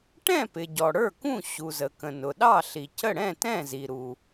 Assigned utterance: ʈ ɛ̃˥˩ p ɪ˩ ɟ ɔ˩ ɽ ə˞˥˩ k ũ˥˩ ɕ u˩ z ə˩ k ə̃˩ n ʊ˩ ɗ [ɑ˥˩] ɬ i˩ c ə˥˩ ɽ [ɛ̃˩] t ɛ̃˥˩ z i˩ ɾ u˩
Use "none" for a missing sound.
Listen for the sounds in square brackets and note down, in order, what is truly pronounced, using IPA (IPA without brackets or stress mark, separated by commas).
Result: ɑ˥˩, ɛ̃˥˩